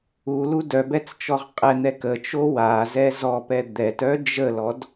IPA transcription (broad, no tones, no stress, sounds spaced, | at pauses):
u l u d œ b ɛ t͡s t͡ʃ ɔ ʁ qʼ ɛ n̪ ɛ k ə t͡ʃ o w a z ɛ z ɔ p ɛ d̪ ɛ t œ d͡ʒ ə l ɔ d